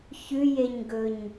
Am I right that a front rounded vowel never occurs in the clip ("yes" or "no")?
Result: yes